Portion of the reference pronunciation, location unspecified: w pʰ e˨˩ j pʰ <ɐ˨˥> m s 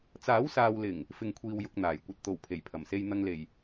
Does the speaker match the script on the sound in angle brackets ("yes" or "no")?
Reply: no